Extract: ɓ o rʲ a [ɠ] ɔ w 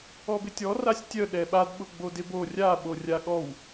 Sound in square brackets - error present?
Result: no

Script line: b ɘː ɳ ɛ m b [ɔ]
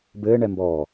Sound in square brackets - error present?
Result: yes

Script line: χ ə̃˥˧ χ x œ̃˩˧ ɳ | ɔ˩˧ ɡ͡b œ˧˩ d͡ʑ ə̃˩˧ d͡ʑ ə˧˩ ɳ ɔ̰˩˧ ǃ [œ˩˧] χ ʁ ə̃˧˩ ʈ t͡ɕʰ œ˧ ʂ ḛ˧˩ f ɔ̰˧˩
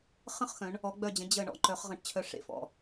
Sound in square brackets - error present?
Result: no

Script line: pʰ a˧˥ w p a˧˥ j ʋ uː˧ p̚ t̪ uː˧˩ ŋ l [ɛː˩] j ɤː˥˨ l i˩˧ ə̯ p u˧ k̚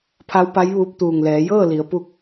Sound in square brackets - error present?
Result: yes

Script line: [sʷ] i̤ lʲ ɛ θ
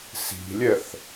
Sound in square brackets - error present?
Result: yes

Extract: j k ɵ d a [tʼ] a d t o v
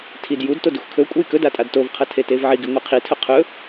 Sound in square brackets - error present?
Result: no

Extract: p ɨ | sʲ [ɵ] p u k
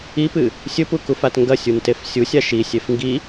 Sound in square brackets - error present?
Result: no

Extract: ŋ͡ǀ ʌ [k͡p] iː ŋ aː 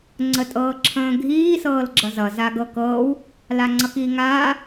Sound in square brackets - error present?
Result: yes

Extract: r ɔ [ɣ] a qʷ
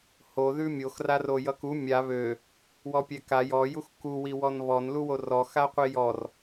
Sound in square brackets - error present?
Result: yes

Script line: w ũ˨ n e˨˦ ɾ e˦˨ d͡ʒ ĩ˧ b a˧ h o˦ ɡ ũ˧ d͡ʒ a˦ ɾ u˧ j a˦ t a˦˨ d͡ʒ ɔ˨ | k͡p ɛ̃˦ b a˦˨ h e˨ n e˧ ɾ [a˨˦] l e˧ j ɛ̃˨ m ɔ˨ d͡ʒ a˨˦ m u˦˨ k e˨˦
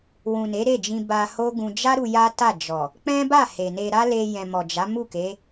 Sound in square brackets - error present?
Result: yes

